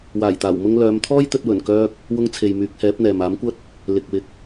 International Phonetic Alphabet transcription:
waː˨˩jt̪aː˨˩w mʊ˧ŋlœː˨˧mt̪ʰɔː˥jt̪ɵ˧t̚ wɵ˨˩nkœː˧k̚ | wʊ˧ŋt͡sʰe˨j myː˨˥k̚hɛː˨˥p̚ n̪ɛː˨maː˨˥mkʷɐ˥t̚ | lɪ˨k̚wɪ˨k̚

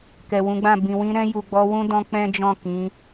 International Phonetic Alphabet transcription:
kɛ˨wũ˨˦ɡ͡bã˦˨ bĩ˨wĩ˧ɾɛ̃˧ ju˨ɡ͡bɔ˧wũ˦dɔ̃˧ k͡pɛ̃˦d͡ʒɔ̃˦˨ kĩ˨˦

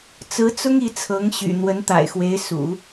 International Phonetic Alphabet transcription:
t͡sɹ̩˧˥t͡sʊ˥ŋ i˧˥t͡sʰɤ˧˥ŋɕy̰˨˩ n̪wə˧˥nt̪a̰˨˩ɪ̯xwe˧˥ɪ̯sṵ˨˩˦

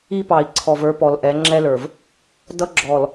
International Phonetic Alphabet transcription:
i˦pɑ˨i̯ ǀʰɔ˨və˞˦pɔ˨lʔɛ˨˦ ŋ͡ǁɛ˦lə˞˨v | dʌ˦ɡ͡ǁɔ˨l

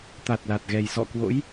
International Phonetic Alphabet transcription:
t̪a˨˩t̚la˨˩t̚ ɣɛ˨˩jsɔ̰˧˨kwo̰˧˥j

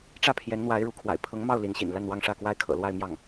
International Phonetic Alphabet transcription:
ʈ͡ʂä˥˩pʰjɛ˧˥nn̪wa˧˥ɪ̯ ɻu˧˥kʰwa̰˨˩ɪ̯ pʰɤ˧˥ŋmɑ˥˩ʊ̯ li˧˥nɕḭ˨˩n la˥˧nwɑ˥˧ŋʂä˥˧kwa˥˩ɪ̯ kʰɤ̰˨˩lwa˥˧ɪ̯ mjɑ˥˩ŋ

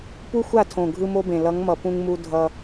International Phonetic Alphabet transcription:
pu˦xʷa˦˨tʰõ˨ ɡʱɯ˦mo˦bẽ˨ lʌ˨˦ŋmʌ˨ pũ˦ŋmu˦ dʱʌ˦

